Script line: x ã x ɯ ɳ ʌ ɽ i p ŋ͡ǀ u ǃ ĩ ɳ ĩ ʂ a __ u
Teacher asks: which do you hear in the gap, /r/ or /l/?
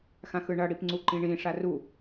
r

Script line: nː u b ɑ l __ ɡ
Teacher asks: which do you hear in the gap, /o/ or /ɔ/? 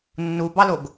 o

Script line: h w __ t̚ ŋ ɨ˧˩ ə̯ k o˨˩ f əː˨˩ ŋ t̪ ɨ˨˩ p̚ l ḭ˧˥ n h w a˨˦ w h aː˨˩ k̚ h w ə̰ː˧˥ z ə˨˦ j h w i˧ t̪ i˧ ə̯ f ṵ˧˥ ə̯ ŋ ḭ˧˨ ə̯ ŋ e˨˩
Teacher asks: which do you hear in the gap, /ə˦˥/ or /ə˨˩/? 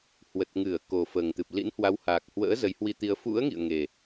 ə˨˩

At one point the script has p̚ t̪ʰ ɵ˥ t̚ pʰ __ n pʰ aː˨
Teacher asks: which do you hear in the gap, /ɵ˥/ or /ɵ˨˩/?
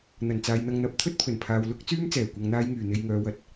ɵ˨˩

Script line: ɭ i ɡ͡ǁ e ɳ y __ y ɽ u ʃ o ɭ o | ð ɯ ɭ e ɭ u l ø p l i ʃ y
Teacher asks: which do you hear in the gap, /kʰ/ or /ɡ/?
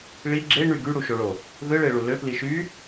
ɡ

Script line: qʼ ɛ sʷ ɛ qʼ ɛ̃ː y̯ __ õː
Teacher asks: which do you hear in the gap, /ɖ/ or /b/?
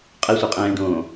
ɖ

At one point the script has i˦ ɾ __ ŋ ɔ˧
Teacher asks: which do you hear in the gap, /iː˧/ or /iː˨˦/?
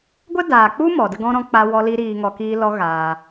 iː˧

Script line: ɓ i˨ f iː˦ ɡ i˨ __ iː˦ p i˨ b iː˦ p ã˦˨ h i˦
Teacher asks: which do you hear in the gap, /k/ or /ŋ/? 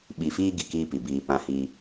k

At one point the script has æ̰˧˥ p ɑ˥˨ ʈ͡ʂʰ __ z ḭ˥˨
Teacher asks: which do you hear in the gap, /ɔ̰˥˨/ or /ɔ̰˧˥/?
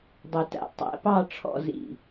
ɔ̰˥˨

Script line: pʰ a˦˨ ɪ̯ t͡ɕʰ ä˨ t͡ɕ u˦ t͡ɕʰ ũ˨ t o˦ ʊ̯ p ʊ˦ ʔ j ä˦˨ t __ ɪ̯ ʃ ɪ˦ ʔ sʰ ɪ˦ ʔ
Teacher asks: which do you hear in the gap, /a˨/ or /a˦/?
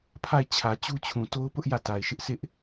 a˨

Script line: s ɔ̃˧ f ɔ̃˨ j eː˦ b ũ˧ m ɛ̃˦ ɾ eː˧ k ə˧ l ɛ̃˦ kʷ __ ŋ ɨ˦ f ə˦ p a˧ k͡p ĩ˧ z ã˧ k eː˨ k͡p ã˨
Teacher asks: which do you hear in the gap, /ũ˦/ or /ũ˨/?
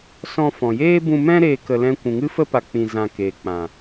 ũ˨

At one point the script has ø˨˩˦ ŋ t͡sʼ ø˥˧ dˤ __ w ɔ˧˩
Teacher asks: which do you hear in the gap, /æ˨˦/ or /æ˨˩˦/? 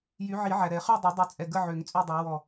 æ˨˦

